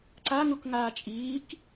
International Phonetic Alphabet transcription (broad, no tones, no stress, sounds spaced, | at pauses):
ǀ a ŋ u k ŋ aː t͡ʃʼ iː k